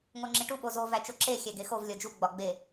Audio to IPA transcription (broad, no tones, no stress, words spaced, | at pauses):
ŋoŋ͡ǁiʈu ɓozo væt͡ʃoǁe xʲæɡexov lʲɒd͡ʒu ɡ͡bɒɡ͡be